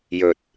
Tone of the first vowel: low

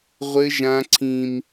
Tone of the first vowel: high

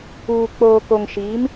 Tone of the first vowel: low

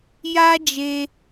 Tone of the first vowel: high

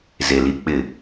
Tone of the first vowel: low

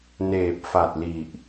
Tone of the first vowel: low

